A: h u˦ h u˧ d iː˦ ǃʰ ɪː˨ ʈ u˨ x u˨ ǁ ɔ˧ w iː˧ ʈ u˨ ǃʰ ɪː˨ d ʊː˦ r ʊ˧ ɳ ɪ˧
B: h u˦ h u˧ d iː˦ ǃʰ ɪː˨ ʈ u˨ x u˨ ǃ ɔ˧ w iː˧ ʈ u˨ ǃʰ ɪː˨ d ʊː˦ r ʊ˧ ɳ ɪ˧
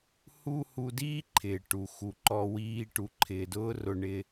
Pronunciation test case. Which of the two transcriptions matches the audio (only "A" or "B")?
B